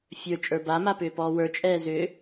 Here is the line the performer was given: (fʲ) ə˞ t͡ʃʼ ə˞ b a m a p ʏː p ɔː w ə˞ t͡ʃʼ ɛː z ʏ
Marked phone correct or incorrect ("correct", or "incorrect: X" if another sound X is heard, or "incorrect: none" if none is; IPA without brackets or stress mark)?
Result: correct